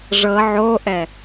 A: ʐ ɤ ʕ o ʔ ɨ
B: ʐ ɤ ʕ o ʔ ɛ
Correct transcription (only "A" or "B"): B